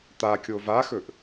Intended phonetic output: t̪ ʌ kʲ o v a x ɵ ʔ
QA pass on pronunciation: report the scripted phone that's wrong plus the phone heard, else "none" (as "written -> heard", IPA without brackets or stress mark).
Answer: ʌ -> a